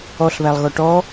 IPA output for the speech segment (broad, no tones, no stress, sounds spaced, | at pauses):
ɔ ɬ β æ lˠ ɣ ɔ ʈ ɔ